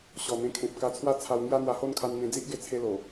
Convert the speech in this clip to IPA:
ɕ ɔ˨˩ n̪ ẽ˧ kʰ ẽ˨ p̚ k a˧ t͡sʰ w a˥˧ t͡sʰ a˧ w ŋ j a˦ n̪ w a˧ h o˥˧ n kʰ a˧ n n̪ ẽ˧ d͡z i˦ ʔ ɡ e˧ t͡sʰ e˧ l o˨˩

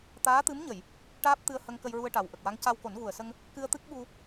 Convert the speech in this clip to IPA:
t̪ aː˧˥ t̪ ɨ˧˥ m ɲ ə˨˩˨ j | ʈ aː˦˥ p̚ t̪ ɨ˧ ə̯ h ə˧ ŋ k ə˧ j ɹ u˧ ə̯ ʈ a˨˩ w ʔ ə˨˩ k̚ w a˧˥ ŋ c a˧ w k o˨˩˦ n ɣ u˨˩ ə̯ s ə˧ ŋ | k ɨ˧ ə̯ t̪ ɨ˦˥ k̚ ɓ u˧

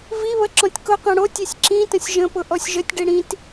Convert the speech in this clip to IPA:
v i β ə ǁ ɔ̃ tʲ k ʊ q ɛ̃ ɽ o tʲ i sʲ ǁ ĩ t ə̃ sʲ ʒ ə̃ p ʊ ʔ ɔ sʲ ʒ ə tʲ ɖ i ɽ ĩ t

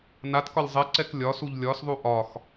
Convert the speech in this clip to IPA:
n a t k ɒ lʲ zˤ ɛ ǀ ɛ k lʲ ɒ s u ʎ lʲ ɒ s ðˤ u ʔ ɒ x

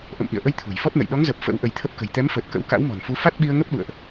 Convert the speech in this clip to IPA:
ʔ ə̰˧˨ m ʔ ḭ˧˨ ə̯ ʔ ə˧ j t̪ʰ ṳ˨˩ j f ɔ˦˥ t̚ n ə̰˧˨ j ɗ ɔ˨˦ ŋ z əː˨˩ p̚ f ə̰˧˥ w ʔ ə˧ j t̪ʰ ə˦˥ p̚ k ə̤˨˩ j t̪ ɛ˨˦ m f əː˨˩ t̚ k ə̰˧˥ w k a̰˧˥ w m ɔ̤˨˩ n f u˨˦ f a˦˥ t̚ ɓ i˧ ə̯ ŋ ə˦˥ p̚ ɗ ṵ˧˨ ə̯ ʔ

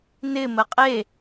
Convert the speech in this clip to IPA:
n ɪ m ə qʼ e

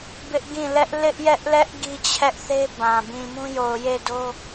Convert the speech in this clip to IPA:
b ɪ˦ ʔ ɡ ĩ˦˨ l ɛ˦ ʔ l ɪ˦ ʔ j ɛ˦ ʔ l ɛ˦ ʔ ɡ i˦ t͡ɕʰ ɛ˦ ʔ θ e˦ b ã˨ b ĩ˨ m ũ˦ j o˨ ʊ̯ j e˦˨ d o˦

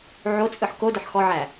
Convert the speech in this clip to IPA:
ʕ o t͡sʼ ɯ ħ k o d ə ħ x ɔ ʕ æ

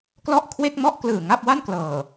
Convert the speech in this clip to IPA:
k l ɔ˥˩ ʔ kʰ w e˥˩ k̚ m ɔ˥˩ ʔ k l ɯː˨˩ ŋ a˥˩ p̚ w a˥˩ n k l ɤː˨˩

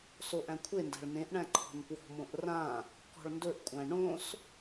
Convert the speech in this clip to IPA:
s o ʔ æ̃ kʷʰ e n d æ̤ ɭ n ẽ ʔ ɳ æ̃ ǃʰ ɔ̤ n p w ɔ̤ m õ ʔ r ã | k ɔ̤ ɭ n d ɵ ʔ kʷʼ æ̃ ɳ õ s

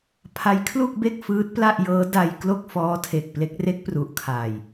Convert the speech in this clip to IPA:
pʰ a˦˥ j kʰ l u˥˩ k̚ b e˥˩ k̚ f ɯː˦˥ t̚ p l a˥˩ ʔ j ɤː˦˥ d a˧ j k l o˥˩ k̚ f ɔː˦˥ tʰ e˨˩ k̚ p l e˦˥ k̚ r e˦˥ k̚ p r u˨˩ ʔ kʰ aː˨˩ j

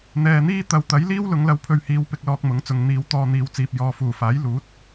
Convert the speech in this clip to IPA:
n̪ ɛː˨ n̪ iː˥ t̪ ɐ˨ w t̪ ɐ˨˥ j l iː˥ w l ʊ˨˧ ŋ l ɐ˧ w pʰ ɵ˧ ɥ h iː˨˧ w p ɪ˧ k̚ l ɔː˧ k̚ m ʊ˨˥ ŋ t͡s ʊ˨ ŋ n̪ iː˨˧ w t̪ ɔː˧ n̪ iː˨˧ w t͡s iː˨ p̚ j ɔː˨ f uː˨˩ f aː˨˥ j l uː˨˥ t̚

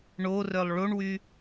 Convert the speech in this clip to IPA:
ɳ o r œ lˠ ɭ o ɳ w y

